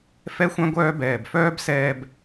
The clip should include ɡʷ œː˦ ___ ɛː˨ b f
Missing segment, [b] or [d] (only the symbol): b